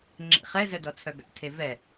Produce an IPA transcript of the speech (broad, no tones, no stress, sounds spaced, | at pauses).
ŋ͡ǁ ḛ χ ɛ z œ d ɔ t͡sʰ œ ɡ a̰ tʰ e v ɛ